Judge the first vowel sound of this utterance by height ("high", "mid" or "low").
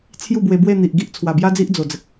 high